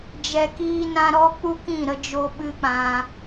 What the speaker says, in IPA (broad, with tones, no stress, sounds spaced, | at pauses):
d͡ʒ ɛ˨ k iː˧ n ã˧ ɾ ɔ˦ k͡p u˦ k ĩ˦˨ ɾ ə˦ d͡ʒ o˦ ɓ ɨ˦ k͡p ã˧